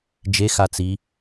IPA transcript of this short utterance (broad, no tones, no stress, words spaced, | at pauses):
d͡ʒe xat͡si